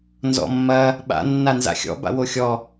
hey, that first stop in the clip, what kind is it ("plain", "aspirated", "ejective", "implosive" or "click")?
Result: implosive